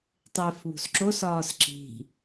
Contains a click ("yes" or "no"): yes